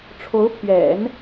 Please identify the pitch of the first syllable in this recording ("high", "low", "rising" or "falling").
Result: rising